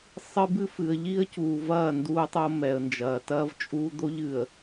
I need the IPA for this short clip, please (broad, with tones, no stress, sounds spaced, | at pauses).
sˤ ɨ˦ b ɨ˦ f ɨ˨ ə̯ ʎ i˦ ə̯ c uː˨ v ɐː˦˨ n d uː˦ tˤ o˦ m ɛ˨ ə̯ n d͡ʒ ɐː˨ t ɐː˦ v t͡ʃʼ uː˦ d̪ o˦ ʎ ɨ˨ ə̯